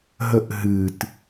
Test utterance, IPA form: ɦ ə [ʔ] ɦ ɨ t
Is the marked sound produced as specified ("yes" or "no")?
yes